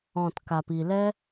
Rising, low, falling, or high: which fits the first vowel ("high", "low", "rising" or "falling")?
low